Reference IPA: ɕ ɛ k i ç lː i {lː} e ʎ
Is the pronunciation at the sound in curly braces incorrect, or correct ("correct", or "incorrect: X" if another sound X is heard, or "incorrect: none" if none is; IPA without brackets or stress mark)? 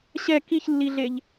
incorrect: ɮ